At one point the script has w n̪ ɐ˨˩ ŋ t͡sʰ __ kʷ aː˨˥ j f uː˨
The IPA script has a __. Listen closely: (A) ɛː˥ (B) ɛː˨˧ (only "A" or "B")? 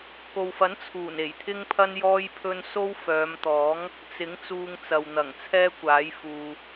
A